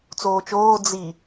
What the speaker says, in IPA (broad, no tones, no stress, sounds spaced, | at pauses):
t͡s oː t͡ʃ oː d͡z i